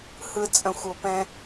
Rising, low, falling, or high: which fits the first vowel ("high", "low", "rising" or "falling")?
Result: low